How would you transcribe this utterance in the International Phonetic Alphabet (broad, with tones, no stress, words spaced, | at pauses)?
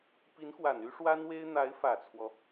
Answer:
pi˧˥nxwa˨˩n y˥ʂwa˥nwe˥ɪ̯ n̪a˧˥ɪ̯fä˨˩t͡sʰwɔ˦